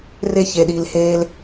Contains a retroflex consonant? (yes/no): no